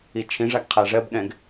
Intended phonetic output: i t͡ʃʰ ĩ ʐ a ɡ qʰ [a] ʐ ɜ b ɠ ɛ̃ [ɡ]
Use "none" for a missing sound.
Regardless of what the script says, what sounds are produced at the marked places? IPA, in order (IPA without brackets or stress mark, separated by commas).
a, ɡ